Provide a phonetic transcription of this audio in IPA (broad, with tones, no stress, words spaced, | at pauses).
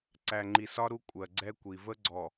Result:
ǀæ˨ŋ͡ǃi˨sɒ˦ ɾu˦ kʷʼɜ˨ɡ͡ǀɛ˦kʷi˨ və˦ɡ͡ǀɔ˨